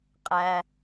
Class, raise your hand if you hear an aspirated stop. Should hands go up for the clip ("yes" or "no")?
no